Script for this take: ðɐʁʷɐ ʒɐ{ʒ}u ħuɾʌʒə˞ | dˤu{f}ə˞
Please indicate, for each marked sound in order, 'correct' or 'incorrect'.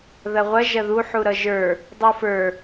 incorrect: ð, correct

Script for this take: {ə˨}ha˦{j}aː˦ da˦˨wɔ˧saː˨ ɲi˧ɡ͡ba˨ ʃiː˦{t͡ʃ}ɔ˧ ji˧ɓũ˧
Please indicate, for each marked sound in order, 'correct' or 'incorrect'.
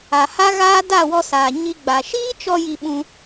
incorrect: a˨, incorrect: ɣ, correct

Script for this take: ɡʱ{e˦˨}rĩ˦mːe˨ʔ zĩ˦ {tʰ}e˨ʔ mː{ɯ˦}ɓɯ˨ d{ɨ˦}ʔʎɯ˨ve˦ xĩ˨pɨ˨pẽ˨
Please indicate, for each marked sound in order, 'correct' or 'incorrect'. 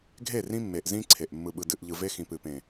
correct, incorrect: ǀʰ, incorrect: ɯ˨, incorrect: ɨ˨

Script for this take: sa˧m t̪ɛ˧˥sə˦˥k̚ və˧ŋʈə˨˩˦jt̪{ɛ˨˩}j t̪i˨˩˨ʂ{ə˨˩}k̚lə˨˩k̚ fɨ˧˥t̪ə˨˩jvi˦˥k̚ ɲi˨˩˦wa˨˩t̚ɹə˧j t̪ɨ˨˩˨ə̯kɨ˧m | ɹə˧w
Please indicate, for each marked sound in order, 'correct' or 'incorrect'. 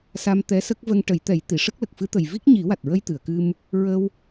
incorrect: ɛ˨˩˦, incorrect: ə˦˥

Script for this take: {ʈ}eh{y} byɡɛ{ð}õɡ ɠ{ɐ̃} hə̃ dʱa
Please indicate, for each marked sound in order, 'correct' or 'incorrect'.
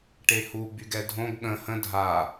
correct, incorrect: u, incorrect: dʱ, incorrect: ə̃

